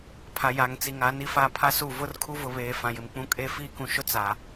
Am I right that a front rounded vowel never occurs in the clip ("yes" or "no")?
yes